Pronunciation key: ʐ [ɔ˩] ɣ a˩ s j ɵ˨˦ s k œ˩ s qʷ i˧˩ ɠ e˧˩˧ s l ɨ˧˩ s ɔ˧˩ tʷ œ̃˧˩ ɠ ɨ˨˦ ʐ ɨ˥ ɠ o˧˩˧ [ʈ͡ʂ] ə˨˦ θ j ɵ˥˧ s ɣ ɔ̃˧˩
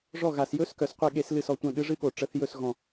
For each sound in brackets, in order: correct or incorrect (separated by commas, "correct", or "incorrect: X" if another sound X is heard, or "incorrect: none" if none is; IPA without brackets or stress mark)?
incorrect: ɔ˧˩, correct